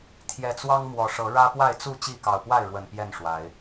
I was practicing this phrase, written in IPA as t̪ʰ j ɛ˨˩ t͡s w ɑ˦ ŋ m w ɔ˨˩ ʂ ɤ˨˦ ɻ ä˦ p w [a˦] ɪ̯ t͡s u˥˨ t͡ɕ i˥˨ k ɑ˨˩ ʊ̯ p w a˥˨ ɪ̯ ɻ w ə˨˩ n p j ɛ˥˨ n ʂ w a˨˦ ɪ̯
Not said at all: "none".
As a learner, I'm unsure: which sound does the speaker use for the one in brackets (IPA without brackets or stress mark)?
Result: a˥˨